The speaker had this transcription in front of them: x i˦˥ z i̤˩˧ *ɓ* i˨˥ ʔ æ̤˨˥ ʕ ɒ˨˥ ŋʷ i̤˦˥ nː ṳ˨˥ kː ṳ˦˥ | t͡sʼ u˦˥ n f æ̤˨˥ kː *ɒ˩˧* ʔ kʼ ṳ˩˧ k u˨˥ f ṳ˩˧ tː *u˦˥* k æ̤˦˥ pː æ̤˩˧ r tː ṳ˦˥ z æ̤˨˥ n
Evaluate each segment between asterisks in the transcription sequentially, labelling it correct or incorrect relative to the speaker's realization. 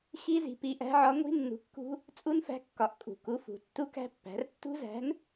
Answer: incorrect, correct, correct

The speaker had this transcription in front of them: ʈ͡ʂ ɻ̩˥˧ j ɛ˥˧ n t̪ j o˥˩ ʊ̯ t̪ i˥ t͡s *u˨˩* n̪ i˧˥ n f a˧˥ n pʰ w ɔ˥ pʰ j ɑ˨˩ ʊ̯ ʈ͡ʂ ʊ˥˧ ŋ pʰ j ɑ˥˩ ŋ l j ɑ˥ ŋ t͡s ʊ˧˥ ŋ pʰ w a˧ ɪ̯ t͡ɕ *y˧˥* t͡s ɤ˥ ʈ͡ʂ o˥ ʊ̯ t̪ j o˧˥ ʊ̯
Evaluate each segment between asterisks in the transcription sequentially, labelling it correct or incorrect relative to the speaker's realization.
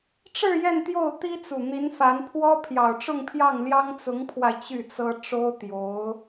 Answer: correct, incorrect

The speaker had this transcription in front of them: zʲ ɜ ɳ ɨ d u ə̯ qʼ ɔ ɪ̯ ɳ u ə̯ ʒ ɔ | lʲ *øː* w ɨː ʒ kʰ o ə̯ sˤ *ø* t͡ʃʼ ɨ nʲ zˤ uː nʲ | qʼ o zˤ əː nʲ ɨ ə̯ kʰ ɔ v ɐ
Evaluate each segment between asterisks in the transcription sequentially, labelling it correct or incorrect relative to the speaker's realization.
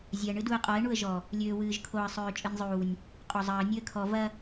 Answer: correct, incorrect

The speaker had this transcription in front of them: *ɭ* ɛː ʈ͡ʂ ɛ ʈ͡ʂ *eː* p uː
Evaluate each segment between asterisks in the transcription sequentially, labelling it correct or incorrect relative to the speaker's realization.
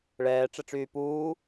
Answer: correct, incorrect

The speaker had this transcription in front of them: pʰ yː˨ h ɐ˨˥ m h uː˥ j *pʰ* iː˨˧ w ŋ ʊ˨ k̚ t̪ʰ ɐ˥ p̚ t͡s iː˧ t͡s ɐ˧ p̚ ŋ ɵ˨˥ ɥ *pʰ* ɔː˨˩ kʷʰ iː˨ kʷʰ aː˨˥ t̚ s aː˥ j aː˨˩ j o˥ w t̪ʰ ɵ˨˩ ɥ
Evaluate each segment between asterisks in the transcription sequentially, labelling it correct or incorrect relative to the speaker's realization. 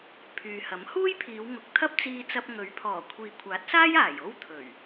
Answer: correct, correct

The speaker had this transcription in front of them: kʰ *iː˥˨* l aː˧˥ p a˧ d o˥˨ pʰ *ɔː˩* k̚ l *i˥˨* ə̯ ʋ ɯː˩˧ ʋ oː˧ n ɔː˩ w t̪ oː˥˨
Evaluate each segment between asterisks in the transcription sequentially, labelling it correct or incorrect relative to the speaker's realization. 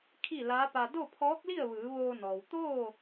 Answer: incorrect, incorrect, correct

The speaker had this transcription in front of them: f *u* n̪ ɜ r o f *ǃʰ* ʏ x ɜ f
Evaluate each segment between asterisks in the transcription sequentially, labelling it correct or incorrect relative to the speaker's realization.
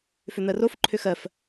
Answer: incorrect, correct

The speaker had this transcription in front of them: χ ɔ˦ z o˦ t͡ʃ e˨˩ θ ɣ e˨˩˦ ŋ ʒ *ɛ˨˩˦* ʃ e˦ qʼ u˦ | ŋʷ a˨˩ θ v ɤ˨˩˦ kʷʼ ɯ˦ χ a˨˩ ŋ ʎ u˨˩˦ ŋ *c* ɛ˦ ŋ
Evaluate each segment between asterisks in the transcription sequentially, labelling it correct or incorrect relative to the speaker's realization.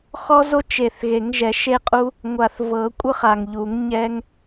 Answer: correct, incorrect

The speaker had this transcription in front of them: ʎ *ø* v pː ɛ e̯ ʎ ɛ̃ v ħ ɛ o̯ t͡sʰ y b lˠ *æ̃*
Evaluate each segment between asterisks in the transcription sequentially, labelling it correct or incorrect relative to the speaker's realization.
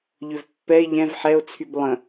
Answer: correct, incorrect

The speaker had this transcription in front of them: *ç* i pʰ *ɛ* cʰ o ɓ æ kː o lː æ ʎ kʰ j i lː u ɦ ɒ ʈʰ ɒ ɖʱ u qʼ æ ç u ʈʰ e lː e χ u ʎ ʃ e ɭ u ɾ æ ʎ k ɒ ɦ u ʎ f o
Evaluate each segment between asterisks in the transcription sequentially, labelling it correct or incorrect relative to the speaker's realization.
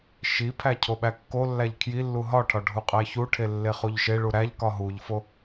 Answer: incorrect, incorrect

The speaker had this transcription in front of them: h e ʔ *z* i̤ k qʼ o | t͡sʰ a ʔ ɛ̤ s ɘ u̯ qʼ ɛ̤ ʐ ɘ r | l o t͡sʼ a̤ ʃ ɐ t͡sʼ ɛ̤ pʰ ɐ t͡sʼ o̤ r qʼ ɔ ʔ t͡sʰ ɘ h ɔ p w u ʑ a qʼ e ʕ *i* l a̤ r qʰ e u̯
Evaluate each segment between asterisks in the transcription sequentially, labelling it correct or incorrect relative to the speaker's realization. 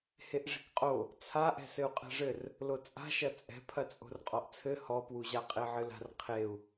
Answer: incorrect, incorrect

